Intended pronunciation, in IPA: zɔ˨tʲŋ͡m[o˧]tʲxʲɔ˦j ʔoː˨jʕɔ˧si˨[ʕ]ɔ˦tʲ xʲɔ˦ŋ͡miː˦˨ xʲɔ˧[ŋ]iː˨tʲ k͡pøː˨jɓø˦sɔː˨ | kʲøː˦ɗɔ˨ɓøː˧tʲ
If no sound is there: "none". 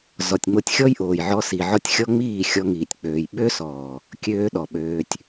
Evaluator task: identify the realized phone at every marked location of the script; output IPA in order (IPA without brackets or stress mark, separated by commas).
o˧, ʕ, ŋ